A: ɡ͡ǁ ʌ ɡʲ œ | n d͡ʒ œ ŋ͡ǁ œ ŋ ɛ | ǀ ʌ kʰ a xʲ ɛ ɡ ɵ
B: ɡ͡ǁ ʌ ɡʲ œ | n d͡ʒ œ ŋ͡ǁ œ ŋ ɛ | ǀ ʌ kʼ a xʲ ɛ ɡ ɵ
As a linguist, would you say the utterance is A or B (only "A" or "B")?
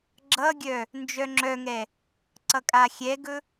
B